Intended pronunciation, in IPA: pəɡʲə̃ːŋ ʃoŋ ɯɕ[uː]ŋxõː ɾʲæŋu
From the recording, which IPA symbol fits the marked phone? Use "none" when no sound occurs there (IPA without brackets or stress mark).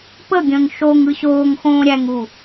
oː